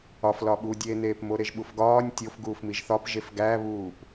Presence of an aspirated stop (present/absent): absent